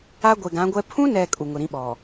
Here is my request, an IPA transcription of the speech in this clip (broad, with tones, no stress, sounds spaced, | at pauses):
a˦ ɡʷ e˨ ɡ ã˨˦ ɡʷ ɛ˦ pʰ ũ˦ n ɛ˨ kʼ u˨ ŋ ʊ˨ ɾ ĩ˦ ɓ ɔ˨